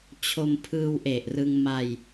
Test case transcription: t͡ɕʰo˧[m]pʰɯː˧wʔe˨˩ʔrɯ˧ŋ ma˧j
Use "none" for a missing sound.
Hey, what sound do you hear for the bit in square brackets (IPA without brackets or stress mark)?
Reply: m